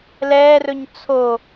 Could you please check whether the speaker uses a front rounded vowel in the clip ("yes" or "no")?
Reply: no